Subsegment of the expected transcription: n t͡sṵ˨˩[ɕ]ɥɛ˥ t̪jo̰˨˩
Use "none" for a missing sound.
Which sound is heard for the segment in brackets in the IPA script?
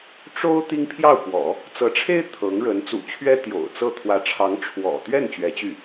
t͡ɕʰ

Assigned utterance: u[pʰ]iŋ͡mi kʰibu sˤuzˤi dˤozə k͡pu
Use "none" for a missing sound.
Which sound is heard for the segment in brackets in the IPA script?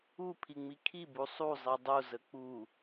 pʰ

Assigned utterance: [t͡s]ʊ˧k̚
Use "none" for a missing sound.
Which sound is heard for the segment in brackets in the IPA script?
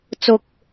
t͡s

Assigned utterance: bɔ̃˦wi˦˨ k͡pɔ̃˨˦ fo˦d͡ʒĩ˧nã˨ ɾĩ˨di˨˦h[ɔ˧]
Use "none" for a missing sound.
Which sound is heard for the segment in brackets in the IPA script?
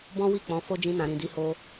o˧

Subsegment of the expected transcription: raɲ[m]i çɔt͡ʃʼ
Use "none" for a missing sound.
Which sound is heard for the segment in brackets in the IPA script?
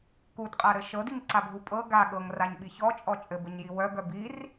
ɓ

